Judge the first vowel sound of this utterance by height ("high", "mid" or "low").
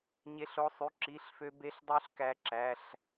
mid